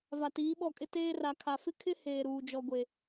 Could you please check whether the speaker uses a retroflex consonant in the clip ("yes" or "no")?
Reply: no